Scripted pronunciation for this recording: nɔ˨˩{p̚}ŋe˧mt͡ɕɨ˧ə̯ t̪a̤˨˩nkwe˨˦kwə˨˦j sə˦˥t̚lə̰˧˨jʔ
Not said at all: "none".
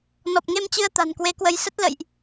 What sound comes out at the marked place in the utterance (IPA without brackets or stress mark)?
p̚